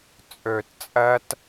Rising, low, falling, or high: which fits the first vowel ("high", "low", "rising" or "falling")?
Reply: low